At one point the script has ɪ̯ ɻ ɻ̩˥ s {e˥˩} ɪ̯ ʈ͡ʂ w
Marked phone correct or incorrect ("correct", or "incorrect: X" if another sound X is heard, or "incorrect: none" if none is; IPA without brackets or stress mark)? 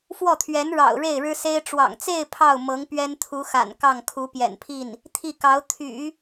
incorrect: e˥